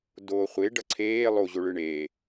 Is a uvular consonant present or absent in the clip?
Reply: present